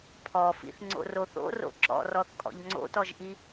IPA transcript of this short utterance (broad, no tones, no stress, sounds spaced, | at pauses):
pʰ ɔ f ḭ θ ŋ͡ǀ o̰ r o θ o̰ r o̰ ǁ ɔ̰ r ɔ θ kʼ ɔ̰ ʎ ŋ͡ǀ o̰ t ɔ ʒ ʔ i